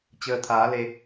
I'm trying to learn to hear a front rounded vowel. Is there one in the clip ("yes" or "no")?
no